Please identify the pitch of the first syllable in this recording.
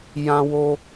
high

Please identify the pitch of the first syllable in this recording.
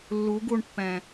rising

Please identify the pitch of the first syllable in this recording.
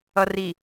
low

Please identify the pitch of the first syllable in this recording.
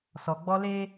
low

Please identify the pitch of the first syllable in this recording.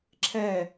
falling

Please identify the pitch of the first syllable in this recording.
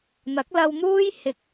rising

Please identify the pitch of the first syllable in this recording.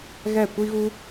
falling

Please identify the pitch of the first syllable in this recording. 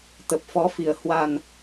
low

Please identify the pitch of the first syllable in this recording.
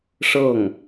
falling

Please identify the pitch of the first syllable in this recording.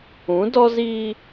rising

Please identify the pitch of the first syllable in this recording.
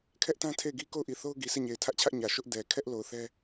high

